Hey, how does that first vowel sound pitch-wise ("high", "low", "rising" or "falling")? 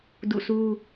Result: falling